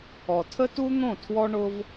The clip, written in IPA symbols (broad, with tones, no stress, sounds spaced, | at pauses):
ɔ˨ tʰ ə˦ t u˦ n̪ õ˦˨ tʰ w ɔ˦ ɳ ʊ˦ v